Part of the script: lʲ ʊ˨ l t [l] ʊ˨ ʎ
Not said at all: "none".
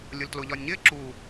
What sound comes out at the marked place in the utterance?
l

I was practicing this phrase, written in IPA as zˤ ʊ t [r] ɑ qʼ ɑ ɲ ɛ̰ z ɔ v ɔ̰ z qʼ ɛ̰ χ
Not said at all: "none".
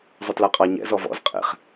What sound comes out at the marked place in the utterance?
l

